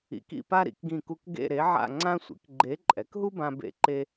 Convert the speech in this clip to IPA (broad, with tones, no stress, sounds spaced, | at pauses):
ḭ˧˥ k ḭ˥˧ p a˥ ɾ ḭ˧˥ k ɡ ĩ˥˧ k u˥ k ɡ ḛ˥˧ ɾ e˧˥ ʕ a̰˥˧ ŋ͡ǀ ã˥ sʷ ḭ˩˥ k ɡ͡ǃ e˧˥ ǃʼ ɛ˩˥ k ɦ u˥ b ã˥ b ḛ˥ ǃ e˥